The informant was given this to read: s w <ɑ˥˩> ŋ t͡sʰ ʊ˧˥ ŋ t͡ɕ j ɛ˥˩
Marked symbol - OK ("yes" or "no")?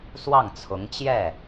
yes